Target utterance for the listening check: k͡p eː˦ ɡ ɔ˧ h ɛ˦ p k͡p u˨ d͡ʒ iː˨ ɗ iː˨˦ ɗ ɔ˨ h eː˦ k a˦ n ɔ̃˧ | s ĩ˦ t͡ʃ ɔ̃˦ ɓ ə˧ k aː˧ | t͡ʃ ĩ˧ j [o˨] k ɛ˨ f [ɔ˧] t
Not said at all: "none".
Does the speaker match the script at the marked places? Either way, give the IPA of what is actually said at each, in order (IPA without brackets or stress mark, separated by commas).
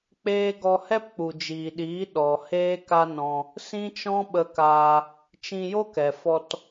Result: o˦, ɔ˧